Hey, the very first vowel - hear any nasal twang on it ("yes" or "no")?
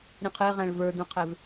yes